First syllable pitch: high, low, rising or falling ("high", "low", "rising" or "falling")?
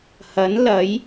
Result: rising